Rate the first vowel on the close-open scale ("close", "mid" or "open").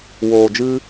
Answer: mid